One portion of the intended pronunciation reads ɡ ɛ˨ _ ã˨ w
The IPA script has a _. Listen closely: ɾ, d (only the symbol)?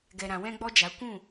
ɾ